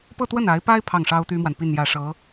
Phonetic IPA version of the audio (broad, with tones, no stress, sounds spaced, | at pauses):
p ɤ˥˧ t̪ w ə˥˩ n a˧˥ ɪ̯ p a˥ ɪ̯ pʰ ɑ˥˩ ŋ ʂ ɑ˥ ʊ̯ t̪ y˥ m w a˨ n p i˥˧ n j ä˥˩ ʂ ɤ˧˥